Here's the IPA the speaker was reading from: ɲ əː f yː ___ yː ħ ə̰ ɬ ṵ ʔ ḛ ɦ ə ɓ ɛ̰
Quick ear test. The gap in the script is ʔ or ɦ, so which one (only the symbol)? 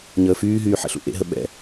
ɦ